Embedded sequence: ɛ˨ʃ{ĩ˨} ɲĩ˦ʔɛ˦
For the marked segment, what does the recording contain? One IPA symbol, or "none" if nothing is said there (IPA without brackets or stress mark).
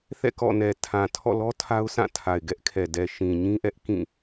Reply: ĩ˨